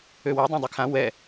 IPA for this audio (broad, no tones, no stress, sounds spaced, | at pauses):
ø w o dˤ ã dˤ y kʰ ã w ɛ